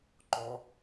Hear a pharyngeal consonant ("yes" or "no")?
no